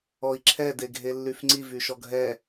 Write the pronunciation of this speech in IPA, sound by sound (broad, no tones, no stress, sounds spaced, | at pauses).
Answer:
ɔ i̯ ǁʰ ɛ d e ɡʱ e lː y f ŋ͡ǀ i v y ʃ ɔ ɡʱ ɛ